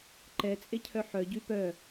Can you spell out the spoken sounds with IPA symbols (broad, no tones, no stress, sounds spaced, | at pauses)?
ǃ ɛ t͡sʼ e cʰ œ ħ œ ɟ y p œ